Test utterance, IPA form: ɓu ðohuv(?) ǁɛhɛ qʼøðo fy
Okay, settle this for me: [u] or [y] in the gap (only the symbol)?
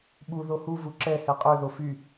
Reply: u